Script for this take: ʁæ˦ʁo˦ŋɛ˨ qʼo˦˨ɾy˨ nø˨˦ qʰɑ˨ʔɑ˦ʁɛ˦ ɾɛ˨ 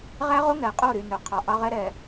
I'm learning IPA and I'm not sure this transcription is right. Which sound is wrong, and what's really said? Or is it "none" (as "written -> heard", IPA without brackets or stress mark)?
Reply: none